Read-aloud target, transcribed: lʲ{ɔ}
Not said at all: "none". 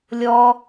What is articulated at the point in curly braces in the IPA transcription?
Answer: ɔ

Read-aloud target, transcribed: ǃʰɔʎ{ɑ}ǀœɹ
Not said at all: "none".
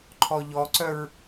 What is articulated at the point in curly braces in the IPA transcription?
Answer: ɔ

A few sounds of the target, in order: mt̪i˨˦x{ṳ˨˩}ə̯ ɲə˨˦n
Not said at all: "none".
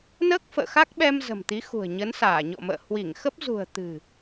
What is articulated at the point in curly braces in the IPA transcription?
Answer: ṳ˨˩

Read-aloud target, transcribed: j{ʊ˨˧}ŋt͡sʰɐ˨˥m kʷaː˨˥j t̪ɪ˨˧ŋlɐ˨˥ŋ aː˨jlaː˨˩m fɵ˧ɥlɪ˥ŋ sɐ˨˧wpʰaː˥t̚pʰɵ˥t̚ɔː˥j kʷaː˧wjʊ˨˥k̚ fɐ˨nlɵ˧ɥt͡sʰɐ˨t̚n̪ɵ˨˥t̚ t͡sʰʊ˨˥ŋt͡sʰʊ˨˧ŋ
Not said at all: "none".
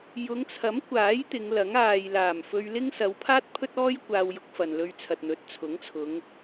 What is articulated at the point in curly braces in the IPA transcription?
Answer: ʊ˨˧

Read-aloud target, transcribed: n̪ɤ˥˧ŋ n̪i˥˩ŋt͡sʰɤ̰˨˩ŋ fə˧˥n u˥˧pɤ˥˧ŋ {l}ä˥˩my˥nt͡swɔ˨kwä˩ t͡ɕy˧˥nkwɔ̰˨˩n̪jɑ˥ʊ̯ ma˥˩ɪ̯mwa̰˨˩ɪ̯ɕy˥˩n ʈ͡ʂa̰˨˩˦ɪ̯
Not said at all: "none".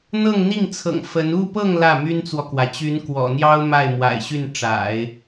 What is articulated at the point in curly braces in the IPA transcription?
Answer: l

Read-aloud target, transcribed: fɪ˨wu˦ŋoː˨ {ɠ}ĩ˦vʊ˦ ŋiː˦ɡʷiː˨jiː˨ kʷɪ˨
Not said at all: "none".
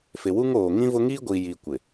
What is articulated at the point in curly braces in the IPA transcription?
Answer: ŋ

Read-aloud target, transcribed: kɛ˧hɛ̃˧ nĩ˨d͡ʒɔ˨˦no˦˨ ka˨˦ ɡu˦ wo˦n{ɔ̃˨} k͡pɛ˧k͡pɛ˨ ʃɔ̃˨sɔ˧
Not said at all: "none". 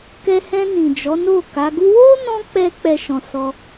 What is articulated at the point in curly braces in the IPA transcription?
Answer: ɔ̃˧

